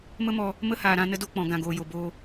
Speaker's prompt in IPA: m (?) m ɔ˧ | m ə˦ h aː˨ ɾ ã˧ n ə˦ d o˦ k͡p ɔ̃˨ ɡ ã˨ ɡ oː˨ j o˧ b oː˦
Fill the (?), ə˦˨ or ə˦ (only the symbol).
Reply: ə˦